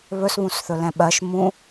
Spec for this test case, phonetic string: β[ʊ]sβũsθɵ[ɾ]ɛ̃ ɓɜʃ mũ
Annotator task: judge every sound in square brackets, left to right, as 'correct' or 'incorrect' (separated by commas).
incorrect, incorrect